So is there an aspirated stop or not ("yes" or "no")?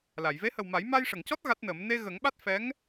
no